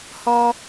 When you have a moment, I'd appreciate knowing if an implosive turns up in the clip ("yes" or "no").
no